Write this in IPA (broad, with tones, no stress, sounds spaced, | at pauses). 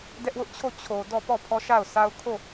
d ɛ˦ ʔ w ʊ˦ ʔ t͡ɕʰ o˦˨ t͡ɕʰ o˨ d ɔ˦˨ p ɔ˦˨ pʰ ɔ˦ ʃ a˦˨ ʊ̯ sʰ a˦ ʊ̯ kʰ o˦˨